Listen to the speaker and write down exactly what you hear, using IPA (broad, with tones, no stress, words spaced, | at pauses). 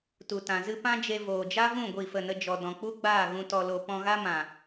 tu˨tã˨ zɨ˧ pã˦d͡ʒe˧ voː˨d͡ʒa˦vũ˦˨ ɡʷi˦˨fə˦˨nə˦d͡ʒɔ˧ dɔ̃˨k͡pu˦ɡ͡baː˦˨ ɣũ˧tɔ˧lo˧ pɔ̃˧ɣa˦mã˨